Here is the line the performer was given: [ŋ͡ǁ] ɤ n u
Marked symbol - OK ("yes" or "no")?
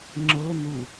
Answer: yes